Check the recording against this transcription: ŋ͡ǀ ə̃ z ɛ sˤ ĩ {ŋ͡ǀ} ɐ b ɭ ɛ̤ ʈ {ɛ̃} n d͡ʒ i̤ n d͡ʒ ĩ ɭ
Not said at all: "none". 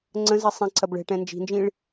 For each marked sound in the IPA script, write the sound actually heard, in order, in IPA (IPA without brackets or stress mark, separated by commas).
ǀ, ɛ̃